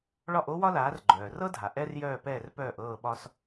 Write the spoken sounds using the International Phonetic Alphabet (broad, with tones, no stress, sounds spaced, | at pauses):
ɭ ɒ˥˩ ʔ o˥ w ɒ˥ l aː˩˥ r ɡ͡ǃ œː˩ r ɤ˥ dʱ a˩ ʔ ɛ˥ r j œː˥˩ p ɛː˥˩ r p œː˥˩ ʔ ɤː˥˩ ɓ ɒ˥ s